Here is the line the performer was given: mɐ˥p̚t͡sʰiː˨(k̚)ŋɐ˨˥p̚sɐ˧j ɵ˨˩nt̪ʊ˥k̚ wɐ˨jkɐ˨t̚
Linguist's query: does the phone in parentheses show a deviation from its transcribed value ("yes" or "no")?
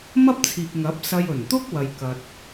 no